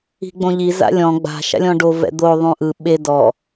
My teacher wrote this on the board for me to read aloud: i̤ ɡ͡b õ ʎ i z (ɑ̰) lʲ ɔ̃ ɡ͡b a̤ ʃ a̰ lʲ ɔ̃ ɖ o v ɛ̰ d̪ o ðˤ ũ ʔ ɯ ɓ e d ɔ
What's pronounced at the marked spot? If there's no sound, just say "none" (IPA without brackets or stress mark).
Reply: a̰